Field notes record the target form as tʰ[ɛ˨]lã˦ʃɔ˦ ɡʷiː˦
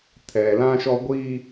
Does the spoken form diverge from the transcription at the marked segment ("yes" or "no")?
no